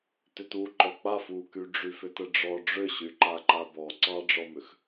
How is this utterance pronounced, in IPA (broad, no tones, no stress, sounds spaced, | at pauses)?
t ʏ t u ǃ ɔ k͡p a f u k y ɖ͡ʐ y f ʏ t ə ɖ͡ʐ ɔ ɖ͡ʐ ʏ ɕ y ǃ a ǃ a b ɔ ǀ ɑ ɖ͡ʐ ɔ m ʏ x